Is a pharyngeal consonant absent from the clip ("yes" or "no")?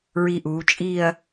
yes